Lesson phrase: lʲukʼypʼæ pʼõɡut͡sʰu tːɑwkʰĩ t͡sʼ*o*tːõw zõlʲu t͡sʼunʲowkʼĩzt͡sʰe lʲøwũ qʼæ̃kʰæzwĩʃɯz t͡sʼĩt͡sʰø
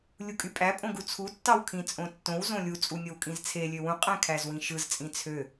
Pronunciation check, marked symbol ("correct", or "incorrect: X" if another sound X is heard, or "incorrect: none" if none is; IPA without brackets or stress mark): incorrect: õ